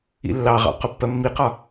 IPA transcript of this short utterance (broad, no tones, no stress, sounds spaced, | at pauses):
ḭ lː ɑ ʁ ɑ̰ q ʊ pː ɜ mː i q ɒ